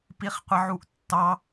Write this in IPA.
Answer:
p i χ qʷ ɪ ʕ u ʔ tː ɑ

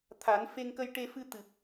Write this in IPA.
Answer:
t̪ʰ a˨˩˦ n f e˧ ŋ k ə˧ j ʈ e˧ f ɨ˧ t̪ ɨ˨˩ p̚

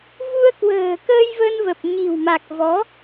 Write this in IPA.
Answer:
v u˧ ə̯ k w ə̤ː˨˩ k əː˧ j v ə˧ n v ə˨˩ p̚ ɲ i̤˨˩ w m a˨˩ k̚ v ɔ˨˦

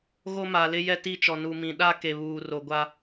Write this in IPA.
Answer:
ɣ o˦ m a˨ l ɪ˦ j ɛ˦ t i˦˨ t͡ʃ ɔ˨ n u˨ m ĩ˨ ɗ a˦ k e˨ β uː˨ r o˨ ɡʷ a˦

